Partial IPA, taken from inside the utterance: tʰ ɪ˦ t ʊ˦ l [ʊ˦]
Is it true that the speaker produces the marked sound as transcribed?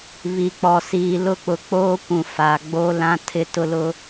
yes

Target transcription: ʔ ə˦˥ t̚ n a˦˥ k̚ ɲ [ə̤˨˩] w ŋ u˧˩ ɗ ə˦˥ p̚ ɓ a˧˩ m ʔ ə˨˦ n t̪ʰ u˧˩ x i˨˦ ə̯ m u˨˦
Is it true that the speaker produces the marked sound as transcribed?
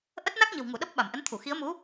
yes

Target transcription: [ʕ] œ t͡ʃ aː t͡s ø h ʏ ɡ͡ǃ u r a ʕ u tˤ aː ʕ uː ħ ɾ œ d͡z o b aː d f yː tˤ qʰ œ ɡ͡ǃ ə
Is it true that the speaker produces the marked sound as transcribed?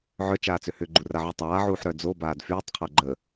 yes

